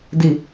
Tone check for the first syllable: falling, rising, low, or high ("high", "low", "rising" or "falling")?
low